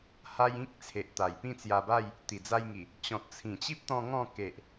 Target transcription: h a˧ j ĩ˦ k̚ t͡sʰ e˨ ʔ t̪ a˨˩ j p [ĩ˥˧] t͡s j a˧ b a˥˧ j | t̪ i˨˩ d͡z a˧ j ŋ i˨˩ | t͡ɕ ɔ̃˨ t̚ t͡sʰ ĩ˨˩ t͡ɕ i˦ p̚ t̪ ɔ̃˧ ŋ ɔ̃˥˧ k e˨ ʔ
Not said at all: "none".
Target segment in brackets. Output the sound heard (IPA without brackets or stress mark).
ĩ˥˧